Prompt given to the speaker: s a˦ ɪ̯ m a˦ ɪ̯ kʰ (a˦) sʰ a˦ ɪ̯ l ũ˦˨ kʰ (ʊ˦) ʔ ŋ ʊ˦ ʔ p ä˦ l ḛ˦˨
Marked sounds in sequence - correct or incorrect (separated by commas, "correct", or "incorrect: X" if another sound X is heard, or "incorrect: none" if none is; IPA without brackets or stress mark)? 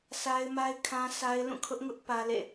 incorrect: ã˦, correct